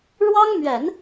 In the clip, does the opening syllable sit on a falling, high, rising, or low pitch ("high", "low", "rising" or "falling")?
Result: high